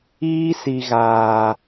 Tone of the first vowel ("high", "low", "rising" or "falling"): high